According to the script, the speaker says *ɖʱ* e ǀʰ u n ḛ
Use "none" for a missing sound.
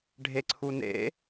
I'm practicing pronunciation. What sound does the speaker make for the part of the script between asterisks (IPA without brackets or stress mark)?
ɖʱ